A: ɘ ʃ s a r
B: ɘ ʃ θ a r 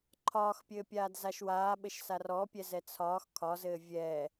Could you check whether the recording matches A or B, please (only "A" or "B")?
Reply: A